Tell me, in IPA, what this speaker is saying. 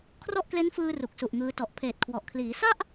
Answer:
kʰrɔ˥˩ʔkle˦˥nfɯː˧ ru˨˩k̚su˨˩ʔŋɯː˧tɔ˨˩ʔ pʰeː˨˩t̚kʰwɔ˨˩ʔ kʰliː˩˦ sa˥˩ʔ

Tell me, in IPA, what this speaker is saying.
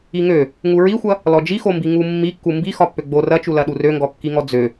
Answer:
iŋø | ŋuɹixʷɐ | lɔd͡ʒixombi ŋumːikːu mbixɒpːø ɡ͡bo rɐt͡ʃulɐɗu røŋɡɔkːiŋɔ d͡zø

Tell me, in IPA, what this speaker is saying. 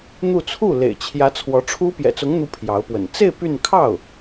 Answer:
n̪u˥˧ t͡sʰu˥˩lḛ˨˩ɪ̯t͡ɕʰjä˧˥ t͡sʰwɔ˧˥ʈ͡ʂʰu˥ pjɛ̰˨˩t͡sʊ˧˥ŋn̪u˧˥ pʰjɑ˧˥ʊ̯pwə̰˨˩n t͡se˥˧ɪ̯ py˥˧n kʰɑ˥˩ʊ̯

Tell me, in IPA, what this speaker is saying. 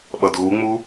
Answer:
ɓʌdɣuŋ͡mu

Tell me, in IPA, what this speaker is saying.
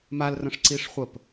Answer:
malrə̃ʂ ǀiʂχʷəp

